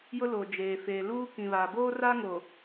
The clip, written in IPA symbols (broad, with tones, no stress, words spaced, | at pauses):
jʊ˦lo˨d͡ʒeː˨feː˨ luː˦kĩ˨βaː˨ boː˦ra˦ŋo˨